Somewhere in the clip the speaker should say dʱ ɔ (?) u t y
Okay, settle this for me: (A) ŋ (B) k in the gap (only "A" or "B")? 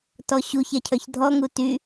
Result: A